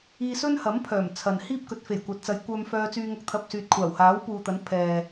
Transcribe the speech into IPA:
iː˧ s ɵ˥ n h ɐ˨˥ m pʰ œː˨˩ m t͡sʰ ɐ˨ n h iː˥ p̚ k ɵ˨˥ t̚ f e˨˩ j kʷ ɐ˨ t̚ t͡s ɐ˨˧ j kʷ œː˧ m f œː˧ t͡s yː˧ ŋ ɐ˧ k̚ t̪ʰ ɐ˨ p̚ s yː˨ t̚ kʷʰ aː˨˩ w h aː˨˥ w p uː˨ t̪ ɐ˨˥ n pʰ ɛː˨

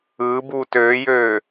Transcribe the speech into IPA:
ɯː b uː t øː j øː

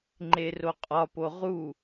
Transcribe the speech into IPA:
ŋ͡ǃ e r o qʼ ɒ p o ʁ u

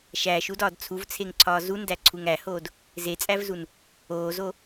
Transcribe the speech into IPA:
ʃ æː ʃ u d ɒː d t͡sʰ u v t͡sʰ e ŋ ǀʰ ɒː z u n d æ ǀʰ u ŋ æ h oː d | z e t͡sʼ æ v z u n | oː z o

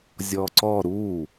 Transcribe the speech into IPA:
zʲ ɔ ǀ ɔ ɾ u

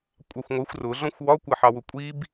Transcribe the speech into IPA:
kʷʼ ɑ xʷ ŋʷ ɜ xʷ r ʊ ɮ ɔ̃ xʷ w ɒ kʷ ə ħ ɑ w ʊ kʷʼ i b

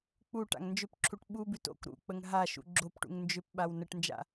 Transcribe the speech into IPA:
k͡p u ʈ a̰ ŋ n d͡ʒ ʏ p ǁʰ u ʈ ɓ u b ʉ t o̰ k ɾ ṵ k͡p ə ŋ ɦ a ʃ ṵ ɡ͡ǁ o p ʈ ṵ ŋ n d͡ʒ ʏ p ɓ a w n ə ʈ n d͡ʒ a̰

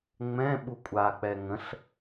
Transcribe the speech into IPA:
ŋ͡m ɛ̃ ɓ u kʷʼ a k͡p ɛ ŋ ə̃ ɬ

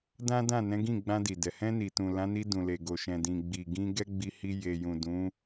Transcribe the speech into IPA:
d ã˦ d ã˦˨ n ɛ̃˨˦ ɡ ĩ˦˨ ɡ͡b ã˧ d i˨ d ɛ˨ h ɛ̃˧ n i˨ t ũ˨ l ã˨˦ n i˧ d ũ˨ l e˨ ɡ o˨ ʃ ɛ̃˨ d ĩ˨ ɡ͡b i˨ ɡ ĩ˧ ɡ ɛ˦ ɡ͡b i˧ h i˧ j e˨ j ũ˨ d ũ˨˦

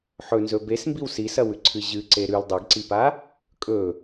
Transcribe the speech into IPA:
ħ ɵ n z ɵ b e s m b i w s i s ɐ w ʉ ǀʰ ɨ ʑ ɨ ǀ e ɾ ʉ l dˤ ɐ ɡ ǀ i p a | kʼ ɵ

